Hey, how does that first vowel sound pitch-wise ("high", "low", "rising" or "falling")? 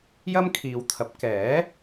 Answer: high